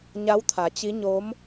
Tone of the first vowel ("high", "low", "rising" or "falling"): rising